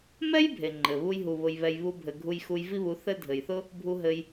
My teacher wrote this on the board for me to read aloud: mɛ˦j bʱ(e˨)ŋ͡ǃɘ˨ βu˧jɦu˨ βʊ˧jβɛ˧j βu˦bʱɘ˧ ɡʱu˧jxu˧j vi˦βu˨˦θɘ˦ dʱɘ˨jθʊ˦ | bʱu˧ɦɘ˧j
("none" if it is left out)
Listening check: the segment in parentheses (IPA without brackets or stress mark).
e˨